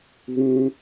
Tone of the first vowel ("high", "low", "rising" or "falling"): high